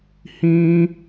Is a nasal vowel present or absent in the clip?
present